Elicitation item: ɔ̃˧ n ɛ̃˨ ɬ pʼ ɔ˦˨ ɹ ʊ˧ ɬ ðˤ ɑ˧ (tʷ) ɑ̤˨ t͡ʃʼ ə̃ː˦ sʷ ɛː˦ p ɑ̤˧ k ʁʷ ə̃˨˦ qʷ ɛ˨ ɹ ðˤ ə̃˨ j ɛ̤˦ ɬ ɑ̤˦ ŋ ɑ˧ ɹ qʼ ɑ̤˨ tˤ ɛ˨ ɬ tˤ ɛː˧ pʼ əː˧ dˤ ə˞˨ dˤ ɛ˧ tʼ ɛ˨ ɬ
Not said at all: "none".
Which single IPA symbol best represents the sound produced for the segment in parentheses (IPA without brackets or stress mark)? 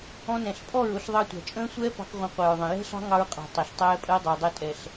tʷ